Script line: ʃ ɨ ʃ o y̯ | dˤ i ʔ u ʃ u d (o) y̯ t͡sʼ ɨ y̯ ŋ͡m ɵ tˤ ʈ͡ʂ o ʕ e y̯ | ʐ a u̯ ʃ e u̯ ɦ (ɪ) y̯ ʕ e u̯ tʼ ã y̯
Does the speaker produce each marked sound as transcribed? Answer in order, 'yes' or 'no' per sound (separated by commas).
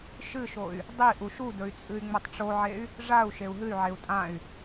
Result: no, no